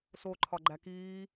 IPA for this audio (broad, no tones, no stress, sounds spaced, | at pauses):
s o ǃʰ ɒ ɡ͡ǃ æ k iː